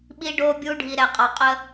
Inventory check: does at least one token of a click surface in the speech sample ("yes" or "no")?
no